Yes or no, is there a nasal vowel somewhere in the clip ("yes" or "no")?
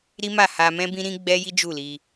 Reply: yes